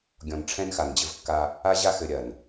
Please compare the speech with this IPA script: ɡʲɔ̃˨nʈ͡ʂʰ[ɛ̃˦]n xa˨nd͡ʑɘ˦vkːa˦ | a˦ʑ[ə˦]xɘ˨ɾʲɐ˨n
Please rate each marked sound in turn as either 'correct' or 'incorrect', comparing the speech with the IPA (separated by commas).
correct, incorrect